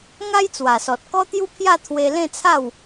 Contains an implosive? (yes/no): no